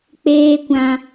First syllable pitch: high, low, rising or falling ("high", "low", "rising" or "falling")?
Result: high